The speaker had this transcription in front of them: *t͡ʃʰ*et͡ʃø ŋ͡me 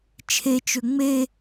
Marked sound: correct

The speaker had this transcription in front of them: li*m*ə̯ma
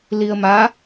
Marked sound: incorrect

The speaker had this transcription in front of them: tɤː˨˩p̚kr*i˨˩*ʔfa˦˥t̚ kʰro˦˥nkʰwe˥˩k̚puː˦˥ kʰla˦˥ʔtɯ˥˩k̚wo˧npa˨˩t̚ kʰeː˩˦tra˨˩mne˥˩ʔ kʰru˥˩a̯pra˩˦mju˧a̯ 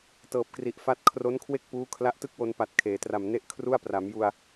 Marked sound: correct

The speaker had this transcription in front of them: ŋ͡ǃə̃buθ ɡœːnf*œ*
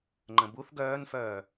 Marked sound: incorrect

